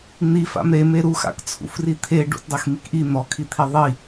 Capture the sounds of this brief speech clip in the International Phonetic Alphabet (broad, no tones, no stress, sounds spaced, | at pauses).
n̪ i f a̰ m ɾ e m e ɾ u x a̰ k t͡sʰ ṵ f r i t̪ʰ e ɖ ṵ t dˤ e x m i k ʔ i n̪ ɔ kʰ i t̪ʰ i ðˤ i